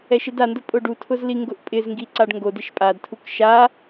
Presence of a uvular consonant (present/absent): absent